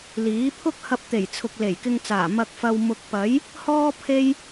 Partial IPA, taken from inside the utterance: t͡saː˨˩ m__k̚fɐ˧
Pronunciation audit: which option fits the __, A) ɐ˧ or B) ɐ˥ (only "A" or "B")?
A